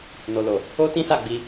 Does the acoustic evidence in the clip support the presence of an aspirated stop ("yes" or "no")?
no